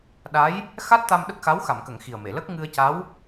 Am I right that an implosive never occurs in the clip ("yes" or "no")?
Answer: no